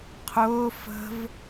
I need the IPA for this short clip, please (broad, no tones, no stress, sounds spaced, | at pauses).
qʰ ʊː f ə̤ v